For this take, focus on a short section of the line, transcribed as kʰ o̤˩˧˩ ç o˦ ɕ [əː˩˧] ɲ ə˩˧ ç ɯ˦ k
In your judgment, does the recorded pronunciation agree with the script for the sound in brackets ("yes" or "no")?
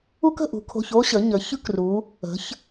no